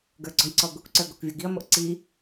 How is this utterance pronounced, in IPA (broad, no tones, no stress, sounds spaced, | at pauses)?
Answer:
ɡ ə˞ ɡ͡ǀ ɔ j ǀ ɔ ɡʷ i kʷ ǀ ə˞ ɡ o kʷ vʲ o ɡ i ɐ̯ m o ʔ ǀ i